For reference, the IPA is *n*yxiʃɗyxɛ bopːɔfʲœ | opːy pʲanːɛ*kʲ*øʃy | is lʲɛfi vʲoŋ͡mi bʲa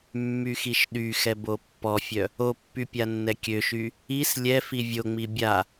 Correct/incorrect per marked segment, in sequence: incorrect, correct

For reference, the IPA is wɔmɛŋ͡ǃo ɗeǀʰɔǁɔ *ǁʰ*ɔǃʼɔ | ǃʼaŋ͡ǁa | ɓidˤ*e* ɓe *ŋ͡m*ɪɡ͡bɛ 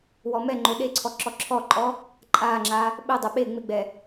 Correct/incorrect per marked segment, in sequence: correct, correct, correct

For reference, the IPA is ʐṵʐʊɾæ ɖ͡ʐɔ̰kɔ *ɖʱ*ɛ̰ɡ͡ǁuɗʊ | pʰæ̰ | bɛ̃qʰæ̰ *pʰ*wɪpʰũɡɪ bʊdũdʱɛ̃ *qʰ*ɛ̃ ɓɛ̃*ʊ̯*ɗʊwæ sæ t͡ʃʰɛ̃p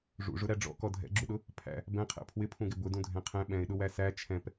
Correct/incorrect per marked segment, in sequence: incorrect, correct, correct, incorrect

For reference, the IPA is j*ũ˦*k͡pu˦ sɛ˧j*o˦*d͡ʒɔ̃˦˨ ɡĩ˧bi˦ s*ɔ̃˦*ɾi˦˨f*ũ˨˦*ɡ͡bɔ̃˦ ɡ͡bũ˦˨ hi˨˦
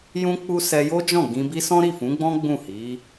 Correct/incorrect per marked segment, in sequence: correct, correct, correct, correct

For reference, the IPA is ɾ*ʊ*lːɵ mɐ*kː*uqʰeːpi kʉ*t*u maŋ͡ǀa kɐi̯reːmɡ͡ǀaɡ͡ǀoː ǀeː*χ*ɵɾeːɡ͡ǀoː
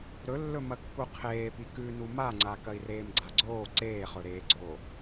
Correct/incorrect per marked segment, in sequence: incorrect, correct, incorrect, correct

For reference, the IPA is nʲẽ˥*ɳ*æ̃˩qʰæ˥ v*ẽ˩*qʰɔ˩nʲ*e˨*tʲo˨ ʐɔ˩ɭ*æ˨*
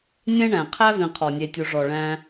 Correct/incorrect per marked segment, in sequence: correct, incorrect, correct, incorrect

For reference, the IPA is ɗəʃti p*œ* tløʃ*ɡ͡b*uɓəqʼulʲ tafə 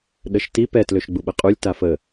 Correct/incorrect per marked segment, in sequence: incorrect, correct

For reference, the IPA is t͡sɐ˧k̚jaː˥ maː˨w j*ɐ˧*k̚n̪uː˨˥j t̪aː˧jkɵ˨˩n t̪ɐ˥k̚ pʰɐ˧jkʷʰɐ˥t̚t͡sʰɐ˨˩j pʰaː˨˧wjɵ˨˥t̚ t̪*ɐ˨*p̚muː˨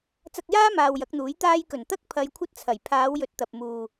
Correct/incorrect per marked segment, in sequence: incorrect, correct

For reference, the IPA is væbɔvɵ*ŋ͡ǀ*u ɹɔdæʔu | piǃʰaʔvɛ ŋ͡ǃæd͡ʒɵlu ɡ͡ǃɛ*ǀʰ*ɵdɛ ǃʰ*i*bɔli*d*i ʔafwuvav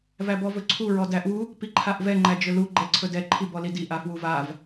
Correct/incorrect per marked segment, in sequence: incorrect, correct, correct, correct

